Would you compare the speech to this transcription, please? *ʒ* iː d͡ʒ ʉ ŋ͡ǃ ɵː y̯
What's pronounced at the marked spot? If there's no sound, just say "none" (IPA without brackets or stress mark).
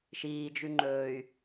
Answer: ʃ